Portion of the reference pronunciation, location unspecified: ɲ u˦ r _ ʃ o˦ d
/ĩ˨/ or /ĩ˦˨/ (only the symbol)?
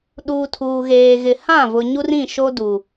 ĩ˦˨